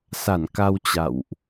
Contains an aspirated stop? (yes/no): no